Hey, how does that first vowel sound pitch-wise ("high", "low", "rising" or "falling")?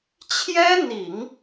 high